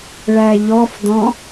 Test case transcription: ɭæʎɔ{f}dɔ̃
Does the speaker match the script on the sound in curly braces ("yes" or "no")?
yes